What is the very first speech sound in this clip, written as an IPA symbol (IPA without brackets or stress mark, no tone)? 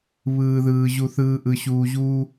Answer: β